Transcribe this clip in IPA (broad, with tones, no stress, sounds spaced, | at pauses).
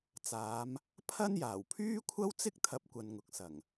t͡s aː˨˧ m | pʰ ɐ˥ n j aː˨˩ w pʰ yː˥ kʷʰ ɐ˥ w t͡s ɪ˥ k̚ t̪ʰ ɐ˨˥ p̚ kʷ ɐ˨ n ŋ ʊ˨ k̚ s ɐ˨˩ ŋ